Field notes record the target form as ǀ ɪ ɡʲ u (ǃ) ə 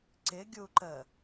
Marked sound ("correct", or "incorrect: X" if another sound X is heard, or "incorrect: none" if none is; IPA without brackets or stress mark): correct